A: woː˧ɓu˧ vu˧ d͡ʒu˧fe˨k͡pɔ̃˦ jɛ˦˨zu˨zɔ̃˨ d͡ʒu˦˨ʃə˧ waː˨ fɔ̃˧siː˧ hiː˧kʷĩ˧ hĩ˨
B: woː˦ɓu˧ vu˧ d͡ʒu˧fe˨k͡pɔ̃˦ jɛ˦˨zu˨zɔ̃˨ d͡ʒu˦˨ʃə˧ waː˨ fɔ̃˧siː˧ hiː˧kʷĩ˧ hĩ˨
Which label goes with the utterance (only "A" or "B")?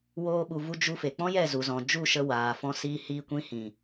B